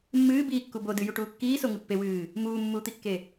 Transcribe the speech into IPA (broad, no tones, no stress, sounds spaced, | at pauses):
mː ɨː b iː kː u b o d ɨ j u ʈ uː kː iː s o ŋ ɨ pː e w ɨː | m uː mː uː t̪ i kː e